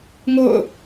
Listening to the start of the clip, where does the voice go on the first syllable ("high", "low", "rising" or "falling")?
falling